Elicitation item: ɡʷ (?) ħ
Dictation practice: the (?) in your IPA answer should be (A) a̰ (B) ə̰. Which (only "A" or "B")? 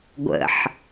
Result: B